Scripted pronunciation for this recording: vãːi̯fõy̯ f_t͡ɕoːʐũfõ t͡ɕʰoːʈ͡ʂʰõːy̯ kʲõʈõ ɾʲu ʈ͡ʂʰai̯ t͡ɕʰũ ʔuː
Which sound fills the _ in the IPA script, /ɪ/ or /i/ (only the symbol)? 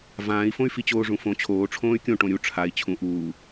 i